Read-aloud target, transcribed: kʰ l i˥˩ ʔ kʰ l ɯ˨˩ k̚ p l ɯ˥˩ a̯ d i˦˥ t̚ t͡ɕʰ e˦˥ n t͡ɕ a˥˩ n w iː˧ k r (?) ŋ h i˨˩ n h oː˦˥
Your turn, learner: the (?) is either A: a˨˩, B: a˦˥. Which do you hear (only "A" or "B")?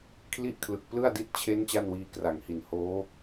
A